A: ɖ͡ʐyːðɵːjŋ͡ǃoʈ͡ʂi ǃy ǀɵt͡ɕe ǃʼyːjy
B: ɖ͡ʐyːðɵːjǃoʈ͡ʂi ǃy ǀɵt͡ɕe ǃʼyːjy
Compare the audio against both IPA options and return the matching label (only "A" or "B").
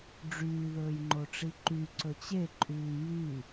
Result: A